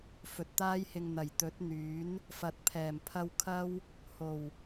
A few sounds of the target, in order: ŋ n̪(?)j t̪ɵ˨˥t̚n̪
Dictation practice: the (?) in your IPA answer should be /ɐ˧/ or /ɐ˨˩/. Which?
ɐ˨˩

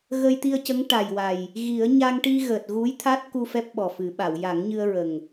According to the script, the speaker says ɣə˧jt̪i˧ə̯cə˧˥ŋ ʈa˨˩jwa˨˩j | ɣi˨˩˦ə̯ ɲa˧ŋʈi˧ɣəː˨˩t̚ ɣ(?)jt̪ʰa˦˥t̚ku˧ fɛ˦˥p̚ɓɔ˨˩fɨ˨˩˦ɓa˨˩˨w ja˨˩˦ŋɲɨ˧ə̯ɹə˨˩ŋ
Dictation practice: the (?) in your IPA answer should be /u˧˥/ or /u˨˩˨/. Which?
u˧˥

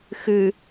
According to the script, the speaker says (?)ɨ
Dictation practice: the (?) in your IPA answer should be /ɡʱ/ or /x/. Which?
x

